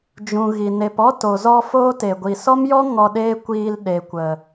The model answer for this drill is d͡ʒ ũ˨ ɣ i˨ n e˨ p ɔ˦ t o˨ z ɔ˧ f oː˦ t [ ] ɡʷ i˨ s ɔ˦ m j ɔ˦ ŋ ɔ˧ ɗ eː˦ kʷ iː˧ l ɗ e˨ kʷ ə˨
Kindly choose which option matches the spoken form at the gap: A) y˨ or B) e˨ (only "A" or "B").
B